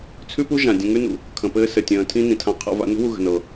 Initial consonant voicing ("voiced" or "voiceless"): voiceless